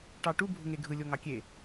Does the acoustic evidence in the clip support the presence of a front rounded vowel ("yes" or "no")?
no